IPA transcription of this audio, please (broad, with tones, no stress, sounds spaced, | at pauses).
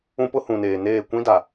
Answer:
ũ˦ p ʊ˦ h ũ˨ n eː˨ n eː˦˨ kʷ ĩ˦ d a˨